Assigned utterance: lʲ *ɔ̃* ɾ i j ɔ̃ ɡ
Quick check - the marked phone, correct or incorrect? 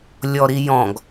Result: incorrect: ɔ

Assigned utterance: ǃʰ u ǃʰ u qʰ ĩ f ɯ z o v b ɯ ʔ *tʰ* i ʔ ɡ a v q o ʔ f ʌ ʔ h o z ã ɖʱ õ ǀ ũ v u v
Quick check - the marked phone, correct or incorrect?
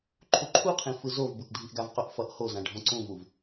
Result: incorrect: dʱ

